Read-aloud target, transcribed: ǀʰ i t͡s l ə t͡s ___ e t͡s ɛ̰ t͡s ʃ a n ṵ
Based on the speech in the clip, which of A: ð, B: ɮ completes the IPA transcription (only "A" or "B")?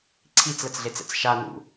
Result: B